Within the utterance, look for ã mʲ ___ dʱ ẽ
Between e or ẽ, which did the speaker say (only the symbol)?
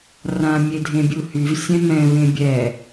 e